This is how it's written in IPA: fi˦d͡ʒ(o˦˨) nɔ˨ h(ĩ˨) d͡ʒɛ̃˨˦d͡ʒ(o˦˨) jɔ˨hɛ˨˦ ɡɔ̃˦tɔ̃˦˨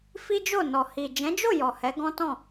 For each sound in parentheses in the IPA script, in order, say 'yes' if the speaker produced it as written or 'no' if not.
yes, no, yes

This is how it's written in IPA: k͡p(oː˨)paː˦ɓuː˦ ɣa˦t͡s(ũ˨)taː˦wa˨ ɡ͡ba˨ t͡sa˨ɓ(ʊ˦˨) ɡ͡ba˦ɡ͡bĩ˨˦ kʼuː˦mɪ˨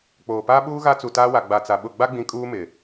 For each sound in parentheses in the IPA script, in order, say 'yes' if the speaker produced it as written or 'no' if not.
yes, no, yes

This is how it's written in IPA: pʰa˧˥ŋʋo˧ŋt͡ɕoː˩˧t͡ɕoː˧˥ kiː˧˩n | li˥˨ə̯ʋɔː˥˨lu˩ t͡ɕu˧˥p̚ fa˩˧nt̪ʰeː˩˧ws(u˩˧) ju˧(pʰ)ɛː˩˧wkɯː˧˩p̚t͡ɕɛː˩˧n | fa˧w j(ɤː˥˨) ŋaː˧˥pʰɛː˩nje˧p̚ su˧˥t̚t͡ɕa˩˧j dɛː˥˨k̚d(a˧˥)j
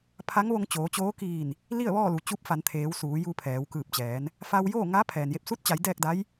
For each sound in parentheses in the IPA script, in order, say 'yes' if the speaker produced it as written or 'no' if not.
no, yes, no, yes

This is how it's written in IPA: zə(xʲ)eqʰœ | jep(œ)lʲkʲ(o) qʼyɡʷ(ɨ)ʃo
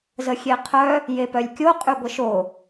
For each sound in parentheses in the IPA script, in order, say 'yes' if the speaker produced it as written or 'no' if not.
yes, yes, yes, no

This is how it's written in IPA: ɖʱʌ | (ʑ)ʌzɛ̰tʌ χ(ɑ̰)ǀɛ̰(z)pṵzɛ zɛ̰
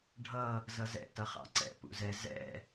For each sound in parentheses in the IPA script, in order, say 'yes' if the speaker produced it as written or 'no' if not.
no, yes, no

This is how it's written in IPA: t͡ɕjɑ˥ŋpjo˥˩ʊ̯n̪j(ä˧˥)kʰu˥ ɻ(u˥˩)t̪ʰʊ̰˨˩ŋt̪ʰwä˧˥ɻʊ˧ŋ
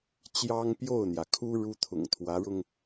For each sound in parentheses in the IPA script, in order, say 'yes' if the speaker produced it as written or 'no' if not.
no, no

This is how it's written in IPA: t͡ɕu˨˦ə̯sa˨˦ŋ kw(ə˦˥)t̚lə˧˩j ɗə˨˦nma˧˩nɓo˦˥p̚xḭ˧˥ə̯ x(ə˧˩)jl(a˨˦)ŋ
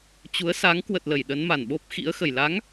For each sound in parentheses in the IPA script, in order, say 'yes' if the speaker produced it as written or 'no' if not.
no, yes, yes

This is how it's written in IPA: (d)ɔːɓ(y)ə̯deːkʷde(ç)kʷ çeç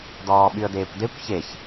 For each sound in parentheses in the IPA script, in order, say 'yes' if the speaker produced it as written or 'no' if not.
yes, yes, no

